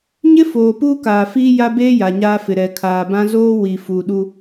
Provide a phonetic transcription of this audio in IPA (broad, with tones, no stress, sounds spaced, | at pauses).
ɲ ɪ˦ f oː˨ p uː˦ k aː˨ f iː˦ j a˦ b eː˦ j a˨ ɲ aː˦ f ɪ˨ ɾ ɛ˨ kʰ aː˨ b ã˦ z oː˦ w i˨ f u˨ ɗ u˦